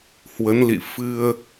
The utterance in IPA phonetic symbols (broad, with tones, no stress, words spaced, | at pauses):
hwə˨˦nlḭ˧˨ fɨ˧ə̯